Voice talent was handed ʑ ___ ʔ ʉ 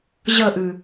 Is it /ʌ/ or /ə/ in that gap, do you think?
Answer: ə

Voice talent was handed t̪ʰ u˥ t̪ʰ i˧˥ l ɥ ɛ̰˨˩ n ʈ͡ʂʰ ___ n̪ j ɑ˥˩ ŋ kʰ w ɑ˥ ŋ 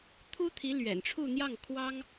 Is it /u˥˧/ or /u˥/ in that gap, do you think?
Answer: u˥˧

